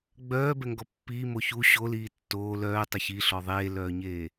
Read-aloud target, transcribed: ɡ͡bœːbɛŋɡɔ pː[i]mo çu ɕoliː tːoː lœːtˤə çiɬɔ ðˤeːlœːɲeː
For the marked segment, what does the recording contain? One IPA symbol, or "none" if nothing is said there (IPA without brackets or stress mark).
iː